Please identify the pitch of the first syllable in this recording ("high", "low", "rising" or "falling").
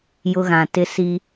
high